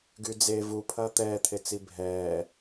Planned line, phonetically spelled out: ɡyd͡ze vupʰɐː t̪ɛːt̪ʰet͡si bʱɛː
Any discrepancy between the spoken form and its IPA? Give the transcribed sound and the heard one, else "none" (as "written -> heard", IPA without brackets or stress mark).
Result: none